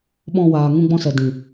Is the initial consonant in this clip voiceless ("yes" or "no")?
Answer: no